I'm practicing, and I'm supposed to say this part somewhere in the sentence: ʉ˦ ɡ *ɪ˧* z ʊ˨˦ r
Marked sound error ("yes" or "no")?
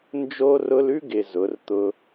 no